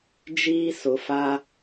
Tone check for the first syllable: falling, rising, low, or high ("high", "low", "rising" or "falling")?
high